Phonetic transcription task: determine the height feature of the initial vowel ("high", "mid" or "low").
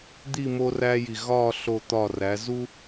high